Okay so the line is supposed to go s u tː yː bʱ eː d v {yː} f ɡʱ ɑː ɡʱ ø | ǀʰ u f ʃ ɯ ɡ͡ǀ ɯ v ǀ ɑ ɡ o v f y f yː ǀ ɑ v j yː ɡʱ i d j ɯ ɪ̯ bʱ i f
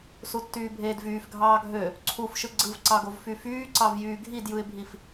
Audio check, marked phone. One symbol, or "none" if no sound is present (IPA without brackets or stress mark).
yː